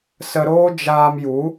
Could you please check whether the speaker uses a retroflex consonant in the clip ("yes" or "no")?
no